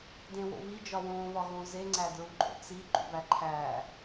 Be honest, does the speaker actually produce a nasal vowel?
yes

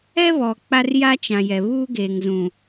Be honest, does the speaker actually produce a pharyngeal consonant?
no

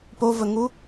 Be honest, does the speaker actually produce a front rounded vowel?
no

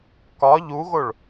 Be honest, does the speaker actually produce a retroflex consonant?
yes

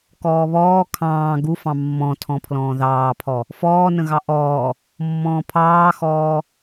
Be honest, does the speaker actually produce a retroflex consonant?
no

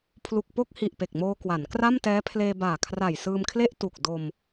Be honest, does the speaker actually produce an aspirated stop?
yes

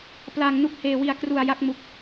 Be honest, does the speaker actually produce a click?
no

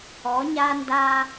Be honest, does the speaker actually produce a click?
no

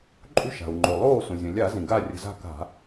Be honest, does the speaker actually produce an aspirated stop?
no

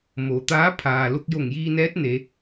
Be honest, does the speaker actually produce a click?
no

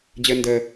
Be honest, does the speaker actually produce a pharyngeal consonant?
no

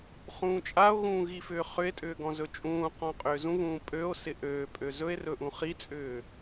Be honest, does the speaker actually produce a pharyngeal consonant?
no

